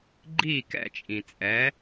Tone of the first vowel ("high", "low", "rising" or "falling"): falling